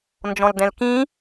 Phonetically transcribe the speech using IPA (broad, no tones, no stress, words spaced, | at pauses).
nd͡ʒɔ̃ldɛ̃lkĩ